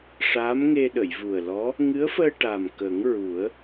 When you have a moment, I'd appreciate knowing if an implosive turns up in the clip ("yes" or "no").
yes